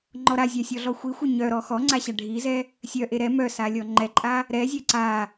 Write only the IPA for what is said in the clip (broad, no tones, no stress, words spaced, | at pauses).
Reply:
ŋ͡ǃɔɾazʲa sʲɔɮɔxʷixʷe ɲœɾɔ xɔŋ͡ǀa ɕaɖʱizɛ | sʲœʔe ɾɛ mœsa lʲɔŋ͡ǃɛǃʼa | ɾɛzʲɛ ǀa